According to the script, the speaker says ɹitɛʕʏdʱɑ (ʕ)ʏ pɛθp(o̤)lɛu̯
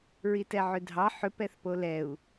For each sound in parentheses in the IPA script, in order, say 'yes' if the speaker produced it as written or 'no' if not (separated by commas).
no, no